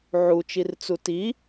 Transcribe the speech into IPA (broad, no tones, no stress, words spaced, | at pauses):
ʕut͡ʃirt͡su ti